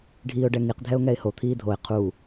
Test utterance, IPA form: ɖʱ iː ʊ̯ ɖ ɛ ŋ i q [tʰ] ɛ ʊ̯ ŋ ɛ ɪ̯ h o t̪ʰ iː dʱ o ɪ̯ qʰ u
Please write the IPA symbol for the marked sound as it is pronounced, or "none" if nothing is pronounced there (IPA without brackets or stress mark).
dʱ